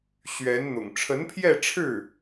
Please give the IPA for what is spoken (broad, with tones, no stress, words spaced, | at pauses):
ɕɥɛ˧˥nn̪ʊ̰˨˩ŋ ʈ͡ʂʰə˧˥npʰjɛ˥˧ʈ͡ʂʰɻ̩˥˩